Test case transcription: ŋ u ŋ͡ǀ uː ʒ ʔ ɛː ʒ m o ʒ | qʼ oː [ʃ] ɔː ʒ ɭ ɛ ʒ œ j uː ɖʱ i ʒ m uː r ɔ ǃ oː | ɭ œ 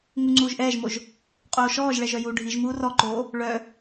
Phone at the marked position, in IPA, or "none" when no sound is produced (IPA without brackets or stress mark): ʃ